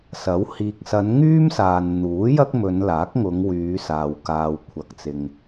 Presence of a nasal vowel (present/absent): absent